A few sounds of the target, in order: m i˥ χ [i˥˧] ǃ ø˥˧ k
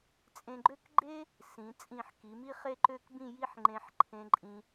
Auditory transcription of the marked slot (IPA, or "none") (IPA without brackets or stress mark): e˥˧